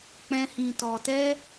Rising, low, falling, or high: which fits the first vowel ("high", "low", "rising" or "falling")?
high